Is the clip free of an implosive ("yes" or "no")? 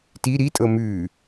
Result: yes